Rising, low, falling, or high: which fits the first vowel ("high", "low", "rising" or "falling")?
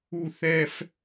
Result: high